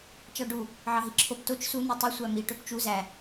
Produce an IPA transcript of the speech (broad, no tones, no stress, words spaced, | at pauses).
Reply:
t͡ʃɑɖu | ʕɑɦiǁʰop tot͡ʃ su n̪utˤi sʷæmi ʈøpt͡ʃu zæ